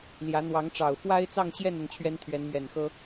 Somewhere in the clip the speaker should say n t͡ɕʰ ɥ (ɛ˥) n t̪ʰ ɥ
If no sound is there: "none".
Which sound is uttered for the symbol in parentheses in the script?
ɛ˥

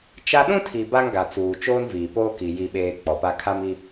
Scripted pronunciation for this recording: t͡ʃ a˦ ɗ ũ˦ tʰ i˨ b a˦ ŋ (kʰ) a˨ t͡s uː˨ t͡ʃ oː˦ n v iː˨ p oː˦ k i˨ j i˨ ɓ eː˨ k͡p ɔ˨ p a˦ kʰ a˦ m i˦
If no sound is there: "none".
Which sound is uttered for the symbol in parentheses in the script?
ɡ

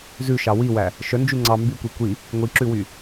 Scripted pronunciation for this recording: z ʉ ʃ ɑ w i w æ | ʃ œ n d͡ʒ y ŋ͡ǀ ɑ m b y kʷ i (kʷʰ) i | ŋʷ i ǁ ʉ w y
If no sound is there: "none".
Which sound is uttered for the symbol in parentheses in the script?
kʷ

